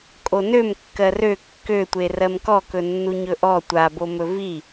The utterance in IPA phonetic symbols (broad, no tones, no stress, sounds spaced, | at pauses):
kʼ o n ø m kː ɜ r ø kː ø tʷ e r ɜ m k ɔ k ɵ nː u ɲ ɵ ʔ ɔ tʷ a b o m ɵ v i